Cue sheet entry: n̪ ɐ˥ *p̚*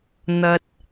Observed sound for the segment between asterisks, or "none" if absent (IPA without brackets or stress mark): t̚